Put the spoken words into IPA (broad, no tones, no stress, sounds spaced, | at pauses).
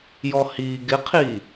j ɔ h iː ɡ ɪ qʰ iː